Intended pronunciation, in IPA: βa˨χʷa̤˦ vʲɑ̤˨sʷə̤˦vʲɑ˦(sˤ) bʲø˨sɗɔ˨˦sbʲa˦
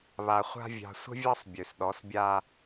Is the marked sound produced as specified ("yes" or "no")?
yes